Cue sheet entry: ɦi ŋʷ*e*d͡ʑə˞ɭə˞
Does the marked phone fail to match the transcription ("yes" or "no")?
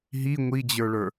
yes